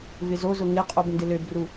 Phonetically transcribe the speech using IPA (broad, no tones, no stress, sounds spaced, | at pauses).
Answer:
v ɪ z o z ʊ ŋ ɪ qʼ o b n d ɪ l ø b r u